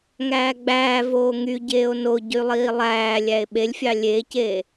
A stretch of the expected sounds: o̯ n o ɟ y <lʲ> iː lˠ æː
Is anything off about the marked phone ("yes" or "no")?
yes